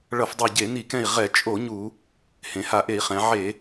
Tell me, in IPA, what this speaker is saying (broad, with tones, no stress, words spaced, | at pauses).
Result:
ɭʌ˧˩˧fdˤa˧˩ ɟe˧˩˧ni˧˩˧kɛ̃˧˩i̯ ʁɛ˧˩˧ t͡ʃʼo˧˩˧ ɲu˧˩˧ | hẽ˩˧ha˧˩˧ʔe˧˩˧i̯χɛ̃˩˧ ʕe˧˩˧